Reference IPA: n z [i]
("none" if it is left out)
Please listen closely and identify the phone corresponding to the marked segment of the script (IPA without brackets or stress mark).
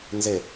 e